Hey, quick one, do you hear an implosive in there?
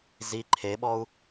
yes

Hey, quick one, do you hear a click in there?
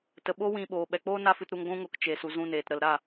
no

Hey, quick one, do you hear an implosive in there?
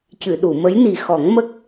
yes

